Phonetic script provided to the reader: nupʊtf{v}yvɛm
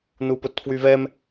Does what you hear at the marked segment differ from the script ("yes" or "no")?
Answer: yes